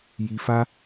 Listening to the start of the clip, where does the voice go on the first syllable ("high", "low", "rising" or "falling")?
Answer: low